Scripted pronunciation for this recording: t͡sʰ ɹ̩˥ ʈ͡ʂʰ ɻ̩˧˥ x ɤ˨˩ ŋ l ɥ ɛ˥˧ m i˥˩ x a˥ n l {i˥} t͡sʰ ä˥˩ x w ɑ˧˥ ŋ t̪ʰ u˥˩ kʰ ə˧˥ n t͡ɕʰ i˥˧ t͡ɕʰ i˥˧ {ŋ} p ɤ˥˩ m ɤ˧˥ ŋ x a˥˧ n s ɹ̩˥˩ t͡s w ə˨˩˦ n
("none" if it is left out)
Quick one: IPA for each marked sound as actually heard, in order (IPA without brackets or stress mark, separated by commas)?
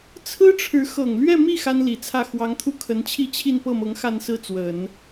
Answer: i˨˩, n